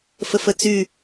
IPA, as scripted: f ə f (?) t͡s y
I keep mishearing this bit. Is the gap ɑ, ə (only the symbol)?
ə